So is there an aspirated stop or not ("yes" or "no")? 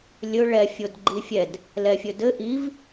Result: no